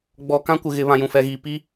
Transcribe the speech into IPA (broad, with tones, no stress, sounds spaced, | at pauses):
ɡ͡b ɔ˨ k ã˦ kʷ ɪ˨ ɣ ɪ˨˦ β ã˨ j ũ˨ f ɛ˨ ɣ iː˨ p iː˦